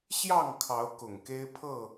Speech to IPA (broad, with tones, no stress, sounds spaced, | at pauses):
ɕ j ɑ˥˨ ŋ kʰ ɑ˨˦ ʊ̯ k ʊ˨˩ ŋ k e˦ ɪ̯ pʰ ɤ˥˨